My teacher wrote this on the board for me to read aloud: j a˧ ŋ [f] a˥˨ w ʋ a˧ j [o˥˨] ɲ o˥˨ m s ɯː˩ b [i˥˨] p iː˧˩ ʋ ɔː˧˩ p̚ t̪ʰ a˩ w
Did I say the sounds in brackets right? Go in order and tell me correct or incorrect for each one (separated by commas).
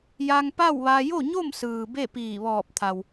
incorrect, correct, incorrect